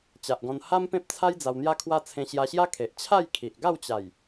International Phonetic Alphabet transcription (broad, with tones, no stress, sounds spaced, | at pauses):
t͡ɕ a˨ ʔ ɡ ɔ̃˧ n h a˦ m p ẽ˦ p̚ t͡sʰ a˦ j d͡z a˧ w n̪ j a˦ kʰ w a˦ t͡sʰ ẽ˧ ɕ j a˧ ɕ j a˦ kʰ e˨ ʔ t͡ɕʰ a˥˧ j kʰ i˨ ʔ ɡ a˥˧ w t͡ɕ a˨˩ j